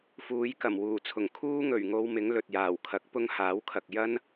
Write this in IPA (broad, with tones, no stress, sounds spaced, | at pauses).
f uː˨˧ j k ɐ˨˩ m w uː˨˩ t͡sʰ ʊ˨˩ ŋ kʰ uː˥ ŋ ɵ˨˩ ɥ ŋ o˧ w m ɪ˨˥ ŋ l ɵ˨ t̚ j aː˨˩ w kʰ ɐ˨˥ k̚ p ʊ˥ ŋ h aː˨˥ w kʰ ɐ˨ k̚ j ɐ˥ n